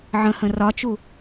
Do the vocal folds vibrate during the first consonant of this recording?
yes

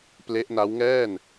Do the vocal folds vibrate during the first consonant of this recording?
no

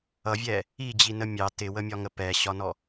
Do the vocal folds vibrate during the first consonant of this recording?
yes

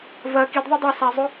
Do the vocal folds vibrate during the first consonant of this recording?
yes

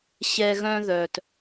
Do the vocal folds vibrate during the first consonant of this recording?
no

